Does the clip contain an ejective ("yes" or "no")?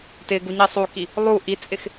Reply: yes